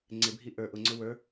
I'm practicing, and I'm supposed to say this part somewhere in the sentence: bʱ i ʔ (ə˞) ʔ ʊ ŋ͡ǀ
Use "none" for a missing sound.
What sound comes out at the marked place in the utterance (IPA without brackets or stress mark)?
ə˞